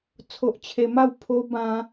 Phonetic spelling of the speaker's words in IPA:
t͡sʰ o˦ ʔ t͡ɕʰ e˧ m a˥˧ w pʰ o˦ b ã˧

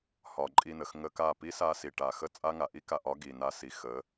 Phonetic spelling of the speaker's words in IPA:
h ɒ˧ ǃʼ i˧ n ə˨ x ŋ ə˧ k a˦˨ p i˦ s a˧ s i˨ ʈ a˨ x ə˦ t͡sʼ a˦ ŋ a˨ ʔ i˦ k a˧ ʔ ɒ˦ ɡ i˨ n a˦ s i˨ x ə˨˦

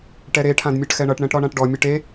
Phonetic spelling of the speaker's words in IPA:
ʈ ɛ ɾ e ʈʰ ã d mʲ ɜ ʈ x ɛ ɳ ʌ ʈ ɳ ɛ̃ ʈ ɾ ɔ ɳ ã ʈ ɖ ɔ mʲ ʌ ʈ e

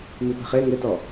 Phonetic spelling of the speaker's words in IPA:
m i p ɛ̤ χ e ŋ ɪ t ɔ

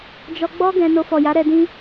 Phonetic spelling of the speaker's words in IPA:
d͡ʒ ɔ˧ ɡ͡b ɔ˦ ɡ ɛ̃˧ n o˧ f ɔ˨ j a˨˦ ɾ ɛ˧ d ĩ˦

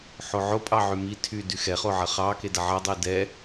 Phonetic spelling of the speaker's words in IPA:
ħ o ʕ o pʼ ɑ ʕ y m i tʰ y d y x ɛ χ o ʕ ɐ χ ɑ k e d ɐ ʕ ɐ dˤ e d ɛ

